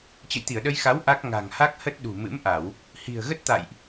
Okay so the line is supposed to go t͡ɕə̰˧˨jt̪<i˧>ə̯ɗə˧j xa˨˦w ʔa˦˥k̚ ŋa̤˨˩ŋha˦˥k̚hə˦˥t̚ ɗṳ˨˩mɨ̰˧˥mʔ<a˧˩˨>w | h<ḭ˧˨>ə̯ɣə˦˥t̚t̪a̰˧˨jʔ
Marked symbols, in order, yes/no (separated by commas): no, yes, no